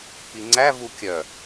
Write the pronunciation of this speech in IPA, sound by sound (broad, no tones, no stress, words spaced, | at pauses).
piŋ͡ǀæ vukʲœ